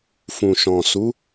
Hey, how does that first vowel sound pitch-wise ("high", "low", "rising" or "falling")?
low